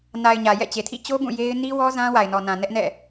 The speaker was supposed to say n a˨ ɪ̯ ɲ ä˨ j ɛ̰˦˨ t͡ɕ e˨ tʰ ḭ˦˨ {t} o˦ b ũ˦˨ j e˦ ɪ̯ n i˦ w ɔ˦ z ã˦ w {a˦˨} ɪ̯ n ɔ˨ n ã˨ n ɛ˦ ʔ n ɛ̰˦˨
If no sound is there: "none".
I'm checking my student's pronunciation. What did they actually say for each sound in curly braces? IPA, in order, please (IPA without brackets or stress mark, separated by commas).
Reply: t͡ɕ, a˨